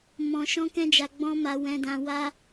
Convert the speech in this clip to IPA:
m ɔ̃˦ ʃ ɔ̃˦ k ɛ̃˦ d͡ʒ a˧ ɡ͡b ɔ̃˦ m a˧ w ɛ̃˧ d ã˧ w a˦

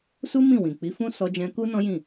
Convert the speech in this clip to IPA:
s u˦ m ĩ˦˨ w ĩ˨ k͡p i˨˦ f ũ˦ s ɔ˧ d͡ʒ ɛ̃˧ k u˦ n ɔ̃˦ j ĩ˦˨

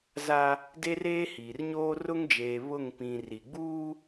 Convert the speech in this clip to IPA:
z a˦ | d e˦ r eː˦ h iː˨ r ɲ oː˦ r ʊ˦ ŋ d͡ʒ eː˨ β ʊ˦˨ ŋ p ĩ˨ r i˨ ɡ͡b uː˦

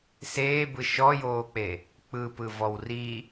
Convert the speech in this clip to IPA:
s eː b ɯ ʃ ɔ j oː k͡p e | k͡p ɯ p ɯ v ɔ w r i

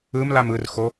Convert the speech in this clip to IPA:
ɯ m l a m ɯ r x o

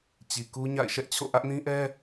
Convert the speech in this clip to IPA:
t͡ɕ i˨ k u˦ ɲ a̰˦˨ ɪ̯ ʃ ɛ˦ ʔ t͡ɕʰ o̰˦˨ ʔ ä˦ ʔ n ĩ˦ ʔ ɛ˦

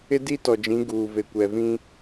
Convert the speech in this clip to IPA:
ɪ˦ d i˦ t ɔ˨ d͡ʒ ĩ˨˦ ɡ uː˨ v e˨ kʷ ɛ˨ v ĩ˦

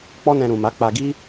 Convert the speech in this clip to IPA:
k͡p ɔ˦ n ɛ̃˧ ɾ ũ˨ m a˨˦ k͡p a˧ ɡ i˦

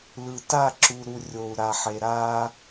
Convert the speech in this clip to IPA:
l ɯ˨ t a˦˨ ǁ u˨ ɾ u˨ rʲ o˨ u̯ ɾ a˨ ħ e˨ ɾ a˦

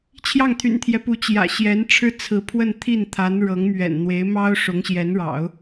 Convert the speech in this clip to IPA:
t͡ɕʰ j ɑ˥˩ ŋ t̪ʰ y̰˨˩ n t̪ʰ j ɛ˦ p u˧˥ t͡ɕ j ä̰˨˩ ɕ j ɛ˧˥ n ʈ͡ʂʰ ɻ̩˥ t͡sʰ ɹ̩˧˥ pʰ w ə˥˧ n t̪ʰ i˥˩ n t̪ʰ a˧˥ n ɻ ɤ˧˥ ŋ m ɥ ɛ̰˨˩ n n̪ w e˧˥ ɪ̯ m ɑ˥ ʊ̯ ʂ ʊ˧˥ ŋ ɕ j ɛ˧˥ n ɻ ɑ̰˨˩˦ ʊ̯

